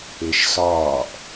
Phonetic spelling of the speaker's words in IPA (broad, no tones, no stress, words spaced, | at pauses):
eʃsɒːʔ